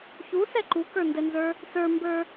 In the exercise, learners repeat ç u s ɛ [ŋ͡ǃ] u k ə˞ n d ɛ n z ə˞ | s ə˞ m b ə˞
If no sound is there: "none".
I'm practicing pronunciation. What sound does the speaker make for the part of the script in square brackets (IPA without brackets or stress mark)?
ǃ